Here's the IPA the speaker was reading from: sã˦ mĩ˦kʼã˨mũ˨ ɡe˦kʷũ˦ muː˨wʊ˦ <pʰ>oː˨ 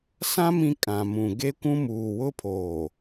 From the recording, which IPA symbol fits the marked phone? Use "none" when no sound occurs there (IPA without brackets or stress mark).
pʰ